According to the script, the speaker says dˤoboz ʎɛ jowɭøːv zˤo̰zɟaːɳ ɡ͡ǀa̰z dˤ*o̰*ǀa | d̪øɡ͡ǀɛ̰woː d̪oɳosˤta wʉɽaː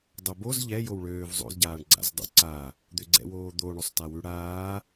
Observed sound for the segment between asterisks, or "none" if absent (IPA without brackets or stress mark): o̰